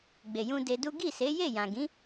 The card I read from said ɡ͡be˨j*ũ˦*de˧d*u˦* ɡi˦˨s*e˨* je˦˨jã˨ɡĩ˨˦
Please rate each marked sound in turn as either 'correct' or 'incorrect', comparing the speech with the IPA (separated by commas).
incorrect, correct, incorrect